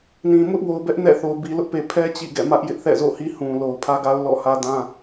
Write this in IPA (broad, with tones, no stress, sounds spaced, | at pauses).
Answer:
n ĩ˨ m ʊ˦ ʔ w o˨ ʊ̯ b ɛ˦ ʔ n ɛ̰˦˨ θ o˨ ʊ̯ b i˨ l ʊ˦ ʔ p e˨ pʰ ɛ˦ t͡ɕ ḭ˦˨ ɡ ɛ̰˦˨ m ä˦ ʔ j ɪ˦ ʔ θ ɛ̰˦˨ z o̰˦˨ h i˦ h ũ˨ l o˨ ʊ̯ pʰ ä˦ ɡ a˦ ʊ̯ l ɔ̰˦˨ h ä˦ d ã˦